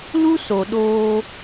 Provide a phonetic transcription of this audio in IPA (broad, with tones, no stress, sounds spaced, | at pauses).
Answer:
l u˦ s o˨ ɗ oː˧